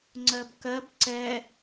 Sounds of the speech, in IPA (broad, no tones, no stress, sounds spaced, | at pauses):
ŋ͡ǀ ɜ b k ɜ b ǀ ɛ